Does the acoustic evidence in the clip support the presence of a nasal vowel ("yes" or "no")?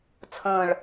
yes